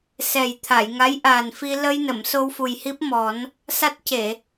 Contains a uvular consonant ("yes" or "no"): no